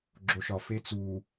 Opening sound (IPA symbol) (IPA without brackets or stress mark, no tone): ɡ͡ǁ